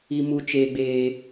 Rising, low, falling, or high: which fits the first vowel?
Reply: low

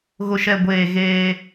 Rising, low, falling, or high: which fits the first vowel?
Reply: low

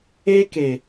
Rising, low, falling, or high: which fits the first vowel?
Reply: high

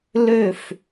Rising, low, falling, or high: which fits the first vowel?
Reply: falling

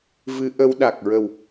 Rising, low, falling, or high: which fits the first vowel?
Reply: rising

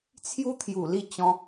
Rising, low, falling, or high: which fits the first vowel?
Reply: high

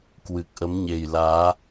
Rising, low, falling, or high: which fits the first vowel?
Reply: low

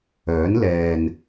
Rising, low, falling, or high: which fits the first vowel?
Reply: rising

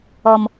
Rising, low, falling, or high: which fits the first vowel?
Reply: low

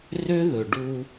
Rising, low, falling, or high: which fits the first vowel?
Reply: high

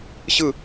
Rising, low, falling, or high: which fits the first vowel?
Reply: falling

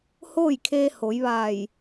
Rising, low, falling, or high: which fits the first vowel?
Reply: falling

